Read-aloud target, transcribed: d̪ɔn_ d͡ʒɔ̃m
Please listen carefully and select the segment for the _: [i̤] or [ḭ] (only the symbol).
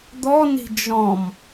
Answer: i̤